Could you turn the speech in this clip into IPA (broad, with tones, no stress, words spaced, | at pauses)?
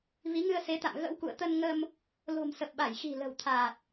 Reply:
vi˨˦ŋɨ˧ə̯se˨˦t̪a̰˧˨m ɣə̰˧˥wkṵ˧˨ə̯t̪ə˧n ŋə˧m | lo̤˨˩msə˨˩p̚ɓa˧˩jxi̤˨˩ lə̤˨˩wt̪ʰaː˨˩t̚